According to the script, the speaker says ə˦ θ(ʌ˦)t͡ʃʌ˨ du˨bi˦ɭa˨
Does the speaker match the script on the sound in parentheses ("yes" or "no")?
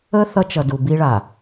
yes